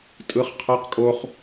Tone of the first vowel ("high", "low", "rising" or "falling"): high